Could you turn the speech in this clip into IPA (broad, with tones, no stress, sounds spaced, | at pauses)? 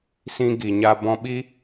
s ĩ˧ ɡ i˨ ɲ a˧ b ɔ̃˧ ɓ i˦